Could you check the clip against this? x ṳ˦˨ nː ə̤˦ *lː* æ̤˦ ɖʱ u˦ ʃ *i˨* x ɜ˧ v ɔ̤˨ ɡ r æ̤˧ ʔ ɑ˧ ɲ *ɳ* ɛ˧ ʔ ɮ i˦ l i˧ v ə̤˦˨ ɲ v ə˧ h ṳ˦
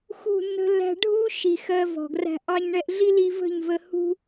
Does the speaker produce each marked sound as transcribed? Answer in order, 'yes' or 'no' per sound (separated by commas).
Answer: yes, yes, yes